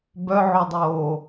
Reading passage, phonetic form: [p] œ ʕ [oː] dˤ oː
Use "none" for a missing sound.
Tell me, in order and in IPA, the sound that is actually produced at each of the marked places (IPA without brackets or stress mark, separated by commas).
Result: b, o